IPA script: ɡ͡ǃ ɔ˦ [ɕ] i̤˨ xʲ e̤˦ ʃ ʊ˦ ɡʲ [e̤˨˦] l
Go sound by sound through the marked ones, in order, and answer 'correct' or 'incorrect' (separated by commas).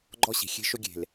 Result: correct, incorrect